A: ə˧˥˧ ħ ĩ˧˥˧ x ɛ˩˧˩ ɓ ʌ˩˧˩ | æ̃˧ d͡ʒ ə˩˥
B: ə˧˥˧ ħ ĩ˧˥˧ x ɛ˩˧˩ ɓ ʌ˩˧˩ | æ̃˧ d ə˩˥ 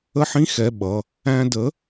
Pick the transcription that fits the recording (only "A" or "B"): B